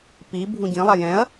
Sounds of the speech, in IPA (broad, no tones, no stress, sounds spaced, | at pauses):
p i bʱ ũ ɟ ĩ lˠ a j ɛ̃ ɐ̯